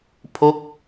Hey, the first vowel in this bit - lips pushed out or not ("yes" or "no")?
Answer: yes